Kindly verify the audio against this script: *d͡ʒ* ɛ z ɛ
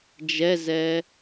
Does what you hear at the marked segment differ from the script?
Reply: no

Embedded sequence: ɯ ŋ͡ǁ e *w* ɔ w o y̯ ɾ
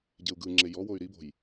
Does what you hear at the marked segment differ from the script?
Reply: yes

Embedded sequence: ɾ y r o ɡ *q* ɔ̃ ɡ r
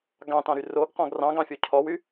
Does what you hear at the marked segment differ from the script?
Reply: no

